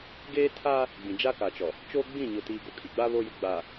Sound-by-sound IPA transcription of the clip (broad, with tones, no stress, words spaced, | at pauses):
ɡeː˦ tʰaː˦ | ɡ͡bĩ˨d͡ʒa˦ka˨t͡ʃɔ˨ | t͡ʃoː˦ɡ͡bĩ˦˨ɲʊ˨ tiː˨ɡo˨kʼi˨ɡ͡ba˦ βo˦jʊ˦ ɡ͡baː˨